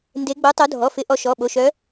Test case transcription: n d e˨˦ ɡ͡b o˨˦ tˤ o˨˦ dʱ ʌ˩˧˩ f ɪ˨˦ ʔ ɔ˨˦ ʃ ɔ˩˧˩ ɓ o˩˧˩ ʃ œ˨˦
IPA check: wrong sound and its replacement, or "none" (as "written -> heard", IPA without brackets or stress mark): ʌ˩˧˩ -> ɔ˩˧˩